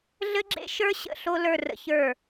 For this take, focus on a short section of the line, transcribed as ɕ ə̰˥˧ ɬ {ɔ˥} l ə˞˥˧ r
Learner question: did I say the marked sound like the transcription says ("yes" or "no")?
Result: no